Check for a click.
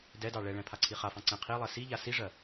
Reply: present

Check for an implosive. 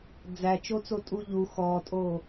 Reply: absent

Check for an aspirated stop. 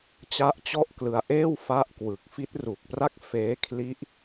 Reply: present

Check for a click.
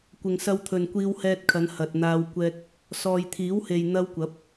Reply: absent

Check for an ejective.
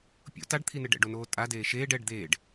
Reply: present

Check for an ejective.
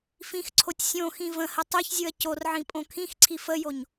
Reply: present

